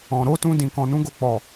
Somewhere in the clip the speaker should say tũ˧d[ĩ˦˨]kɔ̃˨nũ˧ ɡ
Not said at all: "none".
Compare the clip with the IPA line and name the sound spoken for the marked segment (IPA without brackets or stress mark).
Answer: ĩ˨